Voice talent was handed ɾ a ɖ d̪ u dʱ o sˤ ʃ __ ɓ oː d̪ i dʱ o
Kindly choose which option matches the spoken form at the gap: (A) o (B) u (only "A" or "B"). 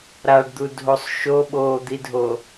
A